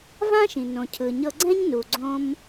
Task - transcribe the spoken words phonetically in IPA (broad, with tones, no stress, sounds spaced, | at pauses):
v ã˥ ʃ ĩ˩ n õ˩ cʰ ɯ˩ ɲ ɤ˧ ɡ͡ǀ ɛ̃˥ ɲ n u˩ ɡ͡ǀ õ˧ m